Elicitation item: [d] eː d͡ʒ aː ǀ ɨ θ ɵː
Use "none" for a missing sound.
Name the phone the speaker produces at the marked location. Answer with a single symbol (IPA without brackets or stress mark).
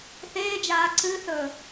θ